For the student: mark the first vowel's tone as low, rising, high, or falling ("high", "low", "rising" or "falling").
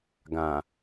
low